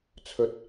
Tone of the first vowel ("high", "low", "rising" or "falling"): rising